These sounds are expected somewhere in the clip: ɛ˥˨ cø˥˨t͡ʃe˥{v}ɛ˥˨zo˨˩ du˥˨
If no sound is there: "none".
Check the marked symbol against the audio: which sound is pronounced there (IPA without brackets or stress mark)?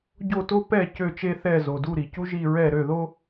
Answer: θ